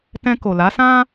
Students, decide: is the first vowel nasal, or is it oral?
nasal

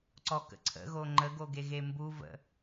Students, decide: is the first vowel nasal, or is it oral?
oral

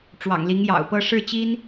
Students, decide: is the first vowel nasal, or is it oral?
oral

